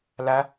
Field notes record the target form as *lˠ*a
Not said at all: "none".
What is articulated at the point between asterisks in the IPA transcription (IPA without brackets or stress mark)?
l